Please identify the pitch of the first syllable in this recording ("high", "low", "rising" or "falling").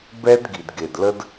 high